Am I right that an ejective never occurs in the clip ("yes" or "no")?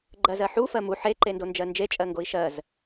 no